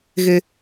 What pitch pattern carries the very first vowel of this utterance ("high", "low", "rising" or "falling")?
high